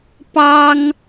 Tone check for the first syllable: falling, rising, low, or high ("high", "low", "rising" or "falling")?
high